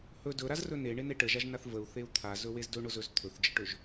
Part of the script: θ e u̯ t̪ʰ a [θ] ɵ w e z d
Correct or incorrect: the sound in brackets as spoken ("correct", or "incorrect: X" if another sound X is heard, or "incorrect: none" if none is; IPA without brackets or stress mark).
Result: incorrect: z